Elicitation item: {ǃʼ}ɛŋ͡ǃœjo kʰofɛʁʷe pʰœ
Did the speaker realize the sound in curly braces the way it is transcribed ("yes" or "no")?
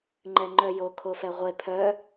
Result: no